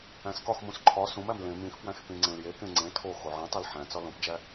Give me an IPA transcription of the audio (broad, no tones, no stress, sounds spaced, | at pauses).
æ̃ s k ɒ x m ũ s ǃʰ ɒ s ũ m æ m l ẽ m ĩ x p w æ̃ x p ĩ ŋ͡ǀ ẽ l j e k ẽ ŋ͡ǀ ẽ tʰ o x o ʕ ẽ tˤ æ l ħ æ̃ t͡s ɒ l õ p d͡ʒ æ